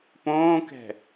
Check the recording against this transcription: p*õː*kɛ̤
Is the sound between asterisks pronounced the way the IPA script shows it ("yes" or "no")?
yes